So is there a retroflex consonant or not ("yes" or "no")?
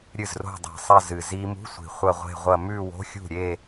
no